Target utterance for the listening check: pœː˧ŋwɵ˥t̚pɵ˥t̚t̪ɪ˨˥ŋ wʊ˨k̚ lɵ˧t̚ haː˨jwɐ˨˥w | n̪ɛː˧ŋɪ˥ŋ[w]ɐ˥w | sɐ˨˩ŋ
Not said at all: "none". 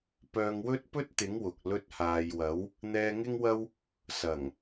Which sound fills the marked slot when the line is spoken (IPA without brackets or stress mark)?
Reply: w